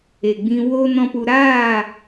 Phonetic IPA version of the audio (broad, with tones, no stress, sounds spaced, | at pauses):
e˨ ɡ͡b ĩ˧ w o˦ n ɔ̃˦ p u˧ ɾ aː˦˨